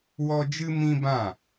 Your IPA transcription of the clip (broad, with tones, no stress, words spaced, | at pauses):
wɔ˦ d͡ʒɨ˦mĩ˦bã˦˨